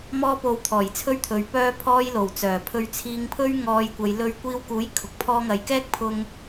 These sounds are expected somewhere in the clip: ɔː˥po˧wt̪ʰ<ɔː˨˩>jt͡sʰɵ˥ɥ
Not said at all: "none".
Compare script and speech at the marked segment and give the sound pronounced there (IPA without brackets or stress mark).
ɔː˨˩